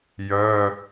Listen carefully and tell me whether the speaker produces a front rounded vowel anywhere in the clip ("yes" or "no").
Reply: yes